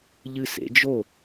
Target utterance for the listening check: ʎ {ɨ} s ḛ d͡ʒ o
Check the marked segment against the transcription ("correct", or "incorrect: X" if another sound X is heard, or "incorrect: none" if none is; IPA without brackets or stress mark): correct